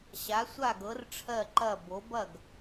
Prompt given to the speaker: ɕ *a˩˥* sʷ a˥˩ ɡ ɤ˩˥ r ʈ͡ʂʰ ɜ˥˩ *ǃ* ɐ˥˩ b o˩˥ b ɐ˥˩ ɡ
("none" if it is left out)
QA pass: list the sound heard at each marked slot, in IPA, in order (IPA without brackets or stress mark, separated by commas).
a˩˥, ǃ